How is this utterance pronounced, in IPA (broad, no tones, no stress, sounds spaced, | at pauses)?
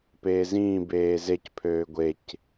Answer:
p eː z ĩː b eː z e c pʰ øː ɡʷ e c